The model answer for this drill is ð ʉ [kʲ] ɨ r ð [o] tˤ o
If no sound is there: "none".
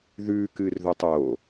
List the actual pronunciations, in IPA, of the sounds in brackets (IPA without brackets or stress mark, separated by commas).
k, ɵ